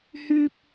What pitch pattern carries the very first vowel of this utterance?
high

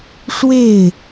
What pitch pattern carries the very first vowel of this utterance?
falling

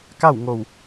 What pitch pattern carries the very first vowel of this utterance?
falling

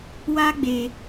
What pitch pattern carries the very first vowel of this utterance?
high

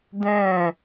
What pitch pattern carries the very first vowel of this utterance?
falling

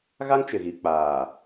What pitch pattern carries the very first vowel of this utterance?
high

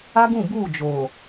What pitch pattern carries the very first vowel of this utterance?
high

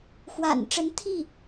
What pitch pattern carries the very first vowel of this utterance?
low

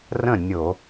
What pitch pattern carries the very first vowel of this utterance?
falling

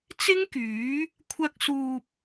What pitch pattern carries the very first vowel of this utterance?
high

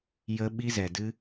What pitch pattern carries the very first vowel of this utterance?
high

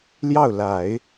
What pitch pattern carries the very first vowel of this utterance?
falling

